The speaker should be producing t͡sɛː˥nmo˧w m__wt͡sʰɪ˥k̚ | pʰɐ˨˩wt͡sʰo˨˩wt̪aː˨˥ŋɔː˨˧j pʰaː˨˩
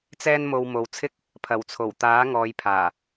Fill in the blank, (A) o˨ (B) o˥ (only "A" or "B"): A